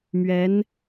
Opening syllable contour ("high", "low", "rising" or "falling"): rising